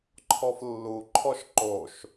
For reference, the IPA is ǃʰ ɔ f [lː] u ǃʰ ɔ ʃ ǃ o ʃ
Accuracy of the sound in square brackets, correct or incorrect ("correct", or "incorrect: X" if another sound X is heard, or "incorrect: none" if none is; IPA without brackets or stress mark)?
correct